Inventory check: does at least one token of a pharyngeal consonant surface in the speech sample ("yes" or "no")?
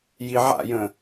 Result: yes